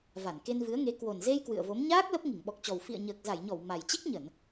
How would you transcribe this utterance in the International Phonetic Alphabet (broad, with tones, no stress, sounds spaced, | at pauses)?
v a˧˩ n k e˧ n v ɨ˨˦ ə̯ ŋ e˨˦ k w o˨˩ n z e˧ j k w ɨ̰˧˨ ə̯ v o˨˦ m ɲ aː˦˥ k̚ l ə˦˥ p̚ ŋ i˧˩ ŋ ɓ ɔ˨˩ k̚ t͡ɕ ɔ˨˩ w f ḭ˧˨ ə̯ ɲ əː˨˩ k̚ z a˧˩ j ɲ ɔ˧˩ w m a˨˩ j t͡ɕ i˦˥ k̚ ɲ ə˧˩˨ n